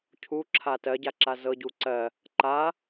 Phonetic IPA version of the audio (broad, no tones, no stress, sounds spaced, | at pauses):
cʰ u ǁʰ a t ɜ ɟ a ǁ a z ɤ ɟ u ǀ ɜ | ǃ a